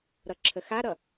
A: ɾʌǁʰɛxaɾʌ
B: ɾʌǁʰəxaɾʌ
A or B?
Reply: B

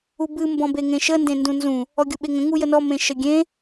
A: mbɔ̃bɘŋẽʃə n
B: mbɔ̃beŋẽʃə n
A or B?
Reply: B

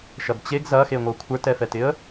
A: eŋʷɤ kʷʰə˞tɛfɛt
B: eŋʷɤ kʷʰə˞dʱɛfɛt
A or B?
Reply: A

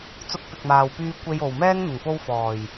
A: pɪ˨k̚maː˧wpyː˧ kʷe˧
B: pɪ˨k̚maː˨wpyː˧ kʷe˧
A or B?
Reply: B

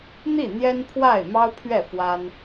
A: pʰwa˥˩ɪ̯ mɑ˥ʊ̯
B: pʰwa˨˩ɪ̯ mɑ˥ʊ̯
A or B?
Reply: A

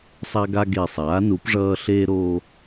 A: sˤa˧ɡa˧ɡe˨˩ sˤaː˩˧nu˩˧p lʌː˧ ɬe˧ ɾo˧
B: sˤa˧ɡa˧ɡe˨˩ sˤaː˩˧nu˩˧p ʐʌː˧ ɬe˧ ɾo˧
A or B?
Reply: B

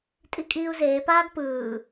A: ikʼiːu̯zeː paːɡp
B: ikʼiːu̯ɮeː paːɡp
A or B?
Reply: A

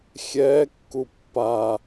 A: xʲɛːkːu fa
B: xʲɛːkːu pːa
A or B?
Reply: B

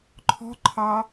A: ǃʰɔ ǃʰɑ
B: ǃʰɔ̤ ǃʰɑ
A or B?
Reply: B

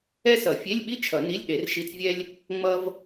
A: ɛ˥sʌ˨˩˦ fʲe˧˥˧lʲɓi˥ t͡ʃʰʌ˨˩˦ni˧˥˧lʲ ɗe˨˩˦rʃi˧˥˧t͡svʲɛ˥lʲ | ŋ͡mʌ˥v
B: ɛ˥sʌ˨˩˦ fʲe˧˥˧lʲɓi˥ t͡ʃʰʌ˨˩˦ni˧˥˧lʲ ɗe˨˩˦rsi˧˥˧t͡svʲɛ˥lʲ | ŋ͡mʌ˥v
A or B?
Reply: A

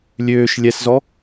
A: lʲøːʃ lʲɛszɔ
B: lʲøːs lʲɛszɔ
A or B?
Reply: A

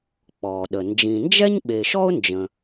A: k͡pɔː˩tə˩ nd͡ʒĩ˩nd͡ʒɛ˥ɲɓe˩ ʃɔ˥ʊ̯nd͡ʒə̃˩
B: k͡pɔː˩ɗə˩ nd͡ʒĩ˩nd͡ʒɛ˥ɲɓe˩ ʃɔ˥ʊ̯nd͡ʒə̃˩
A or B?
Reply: B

